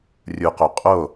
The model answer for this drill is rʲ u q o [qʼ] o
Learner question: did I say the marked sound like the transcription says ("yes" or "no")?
yes